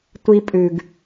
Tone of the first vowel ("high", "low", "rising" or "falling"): high